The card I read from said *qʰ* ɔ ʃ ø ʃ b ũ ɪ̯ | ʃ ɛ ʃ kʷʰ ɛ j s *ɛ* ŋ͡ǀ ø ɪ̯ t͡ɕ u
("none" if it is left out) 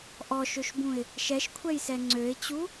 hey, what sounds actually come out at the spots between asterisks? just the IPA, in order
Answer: ʔ, ɛ

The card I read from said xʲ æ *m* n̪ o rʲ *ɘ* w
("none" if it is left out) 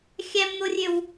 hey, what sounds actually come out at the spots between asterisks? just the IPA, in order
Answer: m, ø

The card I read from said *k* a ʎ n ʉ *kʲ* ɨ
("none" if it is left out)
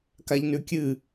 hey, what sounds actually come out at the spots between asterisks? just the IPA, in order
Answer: k, kʲ

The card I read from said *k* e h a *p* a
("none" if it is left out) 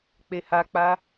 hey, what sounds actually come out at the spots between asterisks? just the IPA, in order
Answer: k͡p, k͡p

